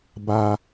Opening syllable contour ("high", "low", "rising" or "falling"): high